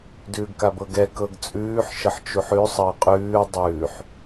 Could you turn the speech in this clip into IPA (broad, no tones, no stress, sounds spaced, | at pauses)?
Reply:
d ʉː ɡ k a b ɤ ɡ ɛ k ɤ ɡ t͡sʼ ʉː ħ ʃ ə ħ t͡ʃ u ħ ʉ sˤ əː qʼ ʉː dˤ ʉː ħ